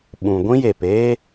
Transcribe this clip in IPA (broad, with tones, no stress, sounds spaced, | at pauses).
ɓ ũ˨ ɡʷ ĩ˦ j e˨ p eː˦